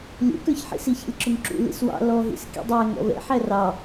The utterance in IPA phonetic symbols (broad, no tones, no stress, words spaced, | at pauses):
lʲṵkə˞çħḭ siçɛ̰lʲǁʊŋǁṵ lḭswɑ̰ lɔɦḭs kḭdˤæ ŋɔ̰vɛ̰ ħærɑ